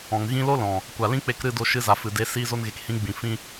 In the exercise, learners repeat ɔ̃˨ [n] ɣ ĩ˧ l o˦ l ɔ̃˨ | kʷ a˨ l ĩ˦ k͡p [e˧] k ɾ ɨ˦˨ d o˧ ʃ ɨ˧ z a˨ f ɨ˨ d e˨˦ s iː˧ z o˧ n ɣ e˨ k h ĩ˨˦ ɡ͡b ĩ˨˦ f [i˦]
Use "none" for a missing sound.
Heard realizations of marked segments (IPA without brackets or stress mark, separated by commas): ŋ, e˧, ĩ˦